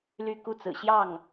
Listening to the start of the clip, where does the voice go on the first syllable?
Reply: falling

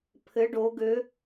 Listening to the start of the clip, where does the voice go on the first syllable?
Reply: rising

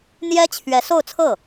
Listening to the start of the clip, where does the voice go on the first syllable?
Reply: high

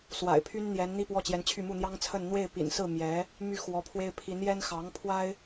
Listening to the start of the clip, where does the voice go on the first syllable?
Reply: low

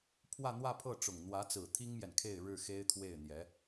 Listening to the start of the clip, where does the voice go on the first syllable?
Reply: falling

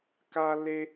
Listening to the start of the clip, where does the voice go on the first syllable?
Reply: high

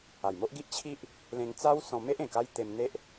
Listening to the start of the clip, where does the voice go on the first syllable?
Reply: low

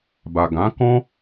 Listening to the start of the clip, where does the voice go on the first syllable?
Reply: low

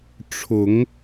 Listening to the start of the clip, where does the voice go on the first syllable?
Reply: rising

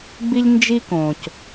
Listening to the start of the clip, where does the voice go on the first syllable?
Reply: high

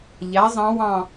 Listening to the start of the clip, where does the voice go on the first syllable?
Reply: rising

